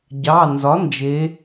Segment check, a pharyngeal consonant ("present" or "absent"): absent